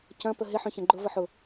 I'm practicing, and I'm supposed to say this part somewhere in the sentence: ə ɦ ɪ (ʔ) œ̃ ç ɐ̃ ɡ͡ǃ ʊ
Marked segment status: incorrect: ħ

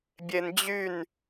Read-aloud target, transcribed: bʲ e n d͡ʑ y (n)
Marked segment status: correct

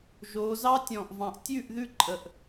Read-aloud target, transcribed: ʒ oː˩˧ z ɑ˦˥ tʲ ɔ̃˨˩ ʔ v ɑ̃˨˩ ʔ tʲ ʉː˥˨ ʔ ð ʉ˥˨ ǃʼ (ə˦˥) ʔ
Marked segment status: incorrect: ə˨˩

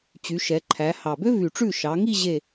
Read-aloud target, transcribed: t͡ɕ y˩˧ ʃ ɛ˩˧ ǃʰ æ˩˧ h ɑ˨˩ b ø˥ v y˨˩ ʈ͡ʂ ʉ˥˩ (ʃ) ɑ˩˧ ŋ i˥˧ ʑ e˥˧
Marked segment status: correct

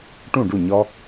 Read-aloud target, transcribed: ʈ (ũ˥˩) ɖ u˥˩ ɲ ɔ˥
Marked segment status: correct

